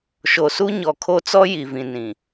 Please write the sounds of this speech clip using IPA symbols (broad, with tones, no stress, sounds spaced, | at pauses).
ʃ o˨ s u˦ ɲ ɔ˨ kʰ o˦ t͡s ɔ˦ j i˨ v ĩ˨ n ĩ˨